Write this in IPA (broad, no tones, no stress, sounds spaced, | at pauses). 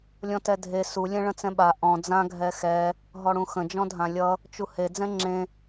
lʲ ɔ̃ t ɛ dʱ e s u lʲ ɛ̃ ɭ ə̃ t͡s ɛ̃ ɓ a ʔ ɔ̃ d͡z ã ɡʱ ɛ x ɛ | ɦ ɔ ɽ ũ x ə̃ d͡ʒ ɔ̃ dʱ ã lʲ ʌ | t͡ʃ u h e d͡z ɛ̃ ŋ͡ǁ ẽ